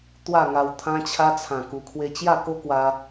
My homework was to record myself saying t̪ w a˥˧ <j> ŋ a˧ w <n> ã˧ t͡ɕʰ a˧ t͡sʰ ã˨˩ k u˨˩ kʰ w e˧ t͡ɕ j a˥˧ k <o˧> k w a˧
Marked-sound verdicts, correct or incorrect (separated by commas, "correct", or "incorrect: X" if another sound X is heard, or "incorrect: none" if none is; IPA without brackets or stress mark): incorrect: none, incorrect: t̪ʰ, incorrect: o˦